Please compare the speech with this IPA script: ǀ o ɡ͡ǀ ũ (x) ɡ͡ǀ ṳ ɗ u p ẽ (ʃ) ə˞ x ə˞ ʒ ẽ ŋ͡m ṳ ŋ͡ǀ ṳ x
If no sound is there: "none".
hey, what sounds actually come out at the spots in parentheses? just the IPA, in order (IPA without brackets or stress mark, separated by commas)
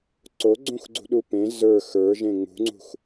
x, z